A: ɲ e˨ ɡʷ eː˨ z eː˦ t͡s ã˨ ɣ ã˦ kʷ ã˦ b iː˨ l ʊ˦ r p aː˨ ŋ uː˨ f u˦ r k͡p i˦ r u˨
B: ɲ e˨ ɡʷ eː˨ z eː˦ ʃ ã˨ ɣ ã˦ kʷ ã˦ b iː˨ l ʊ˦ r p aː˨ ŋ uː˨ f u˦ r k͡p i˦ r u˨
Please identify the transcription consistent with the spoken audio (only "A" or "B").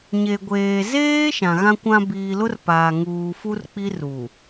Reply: B